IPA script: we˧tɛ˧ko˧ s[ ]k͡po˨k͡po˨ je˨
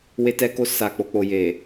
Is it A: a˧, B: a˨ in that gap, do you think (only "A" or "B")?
B